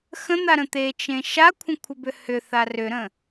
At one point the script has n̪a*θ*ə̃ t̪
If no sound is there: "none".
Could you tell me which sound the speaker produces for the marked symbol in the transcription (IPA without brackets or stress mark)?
ɾ